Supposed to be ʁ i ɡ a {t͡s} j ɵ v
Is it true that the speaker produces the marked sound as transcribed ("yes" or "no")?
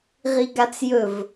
yes